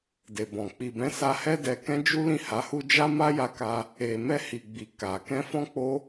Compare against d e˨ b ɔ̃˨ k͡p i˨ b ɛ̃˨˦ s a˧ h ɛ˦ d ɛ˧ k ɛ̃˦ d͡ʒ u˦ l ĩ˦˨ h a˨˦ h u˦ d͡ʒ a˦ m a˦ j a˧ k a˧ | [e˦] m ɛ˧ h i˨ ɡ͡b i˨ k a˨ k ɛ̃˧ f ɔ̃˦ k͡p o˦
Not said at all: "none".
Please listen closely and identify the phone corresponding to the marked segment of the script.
e˨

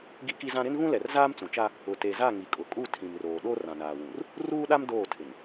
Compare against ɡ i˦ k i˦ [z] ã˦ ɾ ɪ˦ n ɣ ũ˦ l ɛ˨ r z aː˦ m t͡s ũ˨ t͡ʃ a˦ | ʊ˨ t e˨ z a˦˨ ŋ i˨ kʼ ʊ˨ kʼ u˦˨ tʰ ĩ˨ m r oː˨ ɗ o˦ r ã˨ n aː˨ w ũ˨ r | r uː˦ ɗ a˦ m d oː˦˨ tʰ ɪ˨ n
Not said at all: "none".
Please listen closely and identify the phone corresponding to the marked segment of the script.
z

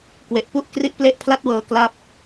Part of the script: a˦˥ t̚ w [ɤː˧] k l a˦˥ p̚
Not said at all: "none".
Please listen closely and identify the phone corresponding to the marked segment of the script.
ɤː˧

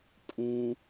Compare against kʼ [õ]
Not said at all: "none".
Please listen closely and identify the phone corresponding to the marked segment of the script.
ũ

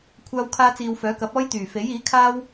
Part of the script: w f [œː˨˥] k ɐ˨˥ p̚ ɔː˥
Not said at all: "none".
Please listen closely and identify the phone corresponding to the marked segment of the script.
œː˨˥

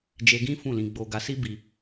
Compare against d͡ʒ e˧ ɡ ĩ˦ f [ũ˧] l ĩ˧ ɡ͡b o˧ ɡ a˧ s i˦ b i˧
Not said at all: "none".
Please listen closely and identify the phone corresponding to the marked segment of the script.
ũ˦˨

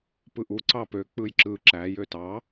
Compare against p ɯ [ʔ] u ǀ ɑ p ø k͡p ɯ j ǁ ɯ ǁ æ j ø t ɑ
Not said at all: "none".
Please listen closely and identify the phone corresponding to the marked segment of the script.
ʔ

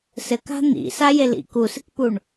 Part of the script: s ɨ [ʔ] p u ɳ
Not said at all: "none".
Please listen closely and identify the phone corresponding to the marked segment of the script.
k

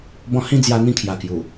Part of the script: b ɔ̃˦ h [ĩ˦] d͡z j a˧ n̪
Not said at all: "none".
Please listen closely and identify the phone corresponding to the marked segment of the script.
ĩ˦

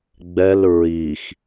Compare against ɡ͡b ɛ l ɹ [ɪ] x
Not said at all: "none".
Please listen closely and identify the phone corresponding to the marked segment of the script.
i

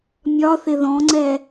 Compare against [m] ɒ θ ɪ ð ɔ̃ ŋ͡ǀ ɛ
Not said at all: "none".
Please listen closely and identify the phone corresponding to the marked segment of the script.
mʲ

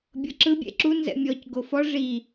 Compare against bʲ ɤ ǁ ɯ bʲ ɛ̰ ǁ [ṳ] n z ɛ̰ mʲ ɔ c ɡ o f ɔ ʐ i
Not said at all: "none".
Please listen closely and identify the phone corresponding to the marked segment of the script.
u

